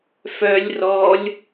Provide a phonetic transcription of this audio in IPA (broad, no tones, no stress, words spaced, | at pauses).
fœlʲ rɔlʲ